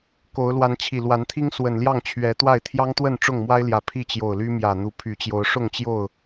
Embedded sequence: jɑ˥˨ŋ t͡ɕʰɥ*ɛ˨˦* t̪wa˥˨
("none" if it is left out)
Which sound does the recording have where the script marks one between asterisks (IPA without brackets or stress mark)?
ɛ˨˦